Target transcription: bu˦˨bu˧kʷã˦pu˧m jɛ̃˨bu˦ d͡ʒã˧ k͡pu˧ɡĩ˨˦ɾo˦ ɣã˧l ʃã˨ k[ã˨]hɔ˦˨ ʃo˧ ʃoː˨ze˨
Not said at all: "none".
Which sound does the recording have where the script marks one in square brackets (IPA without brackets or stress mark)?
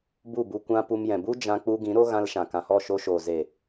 ã˨